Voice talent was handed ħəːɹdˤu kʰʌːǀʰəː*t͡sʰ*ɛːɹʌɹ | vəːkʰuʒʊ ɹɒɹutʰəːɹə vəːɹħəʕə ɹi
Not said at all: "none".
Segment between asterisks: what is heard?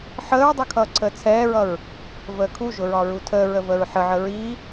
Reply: t͡sʰ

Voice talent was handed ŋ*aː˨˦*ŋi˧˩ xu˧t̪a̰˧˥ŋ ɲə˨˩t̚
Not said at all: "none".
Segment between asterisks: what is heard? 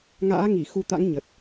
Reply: a̰ː˧˥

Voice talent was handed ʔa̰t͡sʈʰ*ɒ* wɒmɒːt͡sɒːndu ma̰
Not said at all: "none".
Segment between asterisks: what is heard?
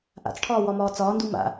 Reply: ɒː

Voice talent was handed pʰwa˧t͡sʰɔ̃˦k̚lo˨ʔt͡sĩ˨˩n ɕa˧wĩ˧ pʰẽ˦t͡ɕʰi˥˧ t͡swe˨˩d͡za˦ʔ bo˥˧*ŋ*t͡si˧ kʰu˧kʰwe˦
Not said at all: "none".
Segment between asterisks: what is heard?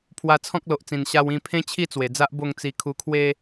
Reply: ŋ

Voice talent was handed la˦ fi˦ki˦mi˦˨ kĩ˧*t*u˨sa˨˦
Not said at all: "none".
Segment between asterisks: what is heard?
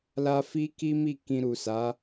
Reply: ɾ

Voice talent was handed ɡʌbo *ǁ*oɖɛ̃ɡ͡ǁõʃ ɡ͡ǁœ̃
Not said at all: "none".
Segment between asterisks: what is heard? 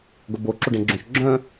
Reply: ǁ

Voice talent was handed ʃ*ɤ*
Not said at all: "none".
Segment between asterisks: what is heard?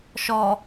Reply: ɔ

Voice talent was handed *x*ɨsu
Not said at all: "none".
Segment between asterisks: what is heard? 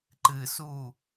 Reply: ǃ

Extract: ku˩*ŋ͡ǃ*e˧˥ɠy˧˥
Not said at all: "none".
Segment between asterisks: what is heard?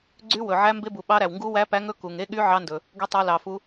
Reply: ŋ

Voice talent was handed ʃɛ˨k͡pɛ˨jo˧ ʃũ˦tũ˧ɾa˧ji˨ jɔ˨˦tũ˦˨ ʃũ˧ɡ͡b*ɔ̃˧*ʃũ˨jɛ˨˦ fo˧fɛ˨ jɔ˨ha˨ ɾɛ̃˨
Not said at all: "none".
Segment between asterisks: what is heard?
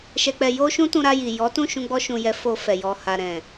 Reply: ɔ˧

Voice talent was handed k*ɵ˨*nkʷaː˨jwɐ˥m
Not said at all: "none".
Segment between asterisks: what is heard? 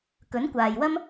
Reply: ɵ˨˥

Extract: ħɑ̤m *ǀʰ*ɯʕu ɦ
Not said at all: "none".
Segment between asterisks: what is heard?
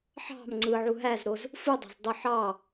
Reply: ŋ͡ǀ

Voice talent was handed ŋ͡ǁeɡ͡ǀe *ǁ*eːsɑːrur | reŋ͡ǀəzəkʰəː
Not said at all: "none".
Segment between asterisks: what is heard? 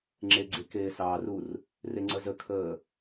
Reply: k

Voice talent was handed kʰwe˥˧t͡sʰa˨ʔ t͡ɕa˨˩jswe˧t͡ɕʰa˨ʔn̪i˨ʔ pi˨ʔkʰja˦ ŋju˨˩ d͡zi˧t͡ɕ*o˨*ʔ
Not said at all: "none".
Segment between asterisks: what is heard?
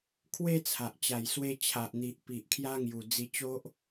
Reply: o˦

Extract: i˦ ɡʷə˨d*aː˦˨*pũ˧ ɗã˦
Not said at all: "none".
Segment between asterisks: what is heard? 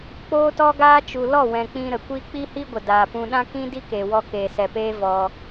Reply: aː˨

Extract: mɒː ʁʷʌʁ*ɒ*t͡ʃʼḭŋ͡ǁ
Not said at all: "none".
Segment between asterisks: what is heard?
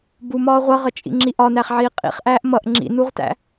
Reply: ʌ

